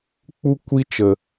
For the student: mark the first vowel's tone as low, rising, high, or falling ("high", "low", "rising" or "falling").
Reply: high